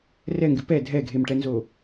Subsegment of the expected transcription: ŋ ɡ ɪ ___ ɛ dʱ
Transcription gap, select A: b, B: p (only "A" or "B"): B